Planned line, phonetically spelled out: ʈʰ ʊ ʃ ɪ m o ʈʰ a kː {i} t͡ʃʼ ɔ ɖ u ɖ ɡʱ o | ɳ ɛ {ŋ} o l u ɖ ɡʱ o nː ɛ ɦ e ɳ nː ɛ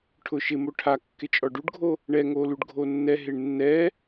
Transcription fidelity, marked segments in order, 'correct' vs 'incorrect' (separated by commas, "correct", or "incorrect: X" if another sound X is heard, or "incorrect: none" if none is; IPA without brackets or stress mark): incorrect: ɪ, correct